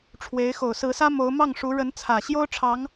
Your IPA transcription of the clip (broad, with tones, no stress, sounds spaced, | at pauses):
ʈ͡ʂʰ w e˧˥ ɪ̯ x o˨˩ ʊ̯ s ɹ̩˧˥ s ä˥ m o˧˥ ʊ̯ m ɑ˥˩ ŋ ʂ u˧˥ ɻ ə˧˥ n t͡sʰ ä˨˩ ɕ j o˥ ʊ̯ ʈ͡ʂʰ ɑ˧˥ ŋ